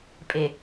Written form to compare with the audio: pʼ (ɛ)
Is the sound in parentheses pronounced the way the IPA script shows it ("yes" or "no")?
no